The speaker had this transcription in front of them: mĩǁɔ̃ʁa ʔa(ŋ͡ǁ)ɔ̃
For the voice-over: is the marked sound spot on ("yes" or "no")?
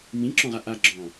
no